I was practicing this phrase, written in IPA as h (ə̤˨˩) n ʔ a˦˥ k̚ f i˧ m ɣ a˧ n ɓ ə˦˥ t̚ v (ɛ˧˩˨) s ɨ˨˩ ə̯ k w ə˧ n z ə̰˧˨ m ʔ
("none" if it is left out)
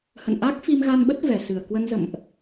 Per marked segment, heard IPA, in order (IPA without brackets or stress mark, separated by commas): ə̰˧˨, ɛ˨˩